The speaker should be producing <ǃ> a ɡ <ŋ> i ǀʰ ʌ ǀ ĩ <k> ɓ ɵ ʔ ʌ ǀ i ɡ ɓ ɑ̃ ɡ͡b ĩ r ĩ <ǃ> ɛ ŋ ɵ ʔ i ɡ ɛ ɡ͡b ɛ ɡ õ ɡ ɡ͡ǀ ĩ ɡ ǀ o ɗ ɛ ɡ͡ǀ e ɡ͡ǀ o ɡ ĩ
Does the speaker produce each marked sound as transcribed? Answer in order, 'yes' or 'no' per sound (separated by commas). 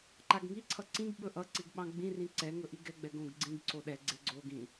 yes, yes, no, no